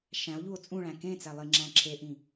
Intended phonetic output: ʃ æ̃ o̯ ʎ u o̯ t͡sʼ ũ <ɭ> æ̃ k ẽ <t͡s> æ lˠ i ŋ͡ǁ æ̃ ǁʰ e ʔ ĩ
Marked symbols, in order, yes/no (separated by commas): yes, yes